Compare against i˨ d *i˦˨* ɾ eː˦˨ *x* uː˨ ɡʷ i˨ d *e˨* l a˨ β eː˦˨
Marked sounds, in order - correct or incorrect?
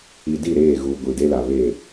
correct, incorrect: ɣ, incorrect: e˦

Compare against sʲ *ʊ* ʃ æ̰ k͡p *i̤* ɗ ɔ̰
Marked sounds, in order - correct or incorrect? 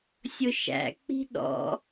correct, correct

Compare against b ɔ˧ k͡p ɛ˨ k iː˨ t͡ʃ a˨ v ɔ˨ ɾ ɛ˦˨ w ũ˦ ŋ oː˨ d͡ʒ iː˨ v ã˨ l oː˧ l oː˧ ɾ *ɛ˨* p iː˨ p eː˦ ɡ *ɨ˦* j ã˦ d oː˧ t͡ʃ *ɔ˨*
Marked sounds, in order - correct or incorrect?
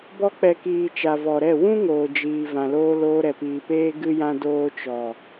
correct, correct, correct

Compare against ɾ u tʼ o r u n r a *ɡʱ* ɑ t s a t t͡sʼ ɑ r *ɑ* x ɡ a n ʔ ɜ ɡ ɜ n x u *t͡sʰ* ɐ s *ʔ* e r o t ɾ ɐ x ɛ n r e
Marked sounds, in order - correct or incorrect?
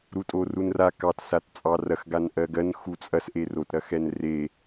incorrect: k, incorrect: ɐ, incorrect: t͡sʼ, correct

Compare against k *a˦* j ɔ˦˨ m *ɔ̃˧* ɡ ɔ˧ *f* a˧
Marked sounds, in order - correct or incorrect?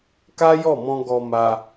correct, correct, incorrect: m

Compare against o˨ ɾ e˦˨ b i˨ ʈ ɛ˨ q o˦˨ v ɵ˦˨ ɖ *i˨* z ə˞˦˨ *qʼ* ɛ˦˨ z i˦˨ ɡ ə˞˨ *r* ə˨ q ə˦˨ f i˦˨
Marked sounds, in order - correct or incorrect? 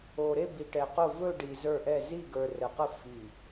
correct, incorrect: ʔ, correct

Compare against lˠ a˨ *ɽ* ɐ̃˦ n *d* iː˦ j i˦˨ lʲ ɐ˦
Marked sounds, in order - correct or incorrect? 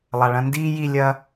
incorrect: ɭ, correct

